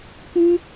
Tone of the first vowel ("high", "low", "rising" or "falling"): high